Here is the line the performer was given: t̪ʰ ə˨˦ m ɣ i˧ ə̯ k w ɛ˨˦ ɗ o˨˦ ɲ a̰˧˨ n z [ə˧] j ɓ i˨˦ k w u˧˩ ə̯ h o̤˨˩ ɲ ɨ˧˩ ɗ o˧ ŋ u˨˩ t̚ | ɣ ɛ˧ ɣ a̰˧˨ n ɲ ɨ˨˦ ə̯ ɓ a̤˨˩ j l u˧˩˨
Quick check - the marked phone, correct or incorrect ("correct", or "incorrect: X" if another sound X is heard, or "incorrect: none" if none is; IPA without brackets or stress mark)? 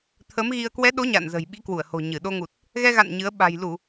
incorrect: ə̤˨˩